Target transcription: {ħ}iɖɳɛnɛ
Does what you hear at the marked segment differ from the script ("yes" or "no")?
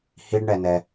yes